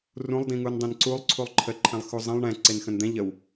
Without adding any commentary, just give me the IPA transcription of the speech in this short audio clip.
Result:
r ũ lˠ d ĩ ŋ u n dˤ ẽ n ǀ u lˠ ǀʰ u lˠ ǃʰ ə ǃʰ ɛ̃ lˠ x u zˤ ə̃ lˠ ɳ ɛ̃ ǀ e n x ə̃ n d̪ ɛ̃ ʎ ə w

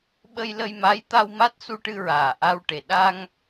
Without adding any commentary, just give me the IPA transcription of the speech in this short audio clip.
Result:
ɓ ə˧ j l ə˧ j m a˧˥ j t̪ a˧ w m a˦˥ t̚ s u˧ ʈ ɨ˧ ɹ aː˨˩ ʔ a˧ w ʈ e˨˩ ɗ a˧ ŋ

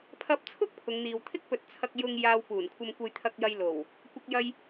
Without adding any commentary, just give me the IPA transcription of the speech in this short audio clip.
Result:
pʰ ɐ˨ p̚ t͡sʰ ʊ˧ k̚ pʰ ʊ˨˧ ŋ n̪ iː˨ w t̪ʰ ɪ˥ k̚ p ɵ˨˥ t̚ t͡sʰ ɐ˧ k̚ j ʊ˧ ŋ j aː˧ w p uː˨˩ n kʷʰ ɐ˧ m kʷ ɐ˧ j t̪ʰ ɐ˧ k̚ j ɐ˧ j l o˨˩ w | kʷ ɐ˧ k̚ j ɐ˧ j

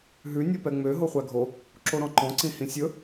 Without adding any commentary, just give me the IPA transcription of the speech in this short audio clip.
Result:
ɦ ʉ nʲ o p ɛ ŋ͡m ø ɦ o χʷ æ ɡʱ o | ǁ o ɾ ɔ̃ ǃ ɔ̃ ǀ ĩ h ĩ sʲ ɵ

